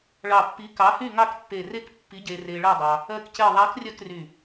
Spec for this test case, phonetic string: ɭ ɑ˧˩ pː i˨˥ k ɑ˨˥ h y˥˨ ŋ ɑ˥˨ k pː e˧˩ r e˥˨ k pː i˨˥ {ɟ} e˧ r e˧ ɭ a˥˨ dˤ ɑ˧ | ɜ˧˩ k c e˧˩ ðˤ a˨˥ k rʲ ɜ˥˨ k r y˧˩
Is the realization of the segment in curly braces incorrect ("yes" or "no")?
no